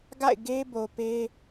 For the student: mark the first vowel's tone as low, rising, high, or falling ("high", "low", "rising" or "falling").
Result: falling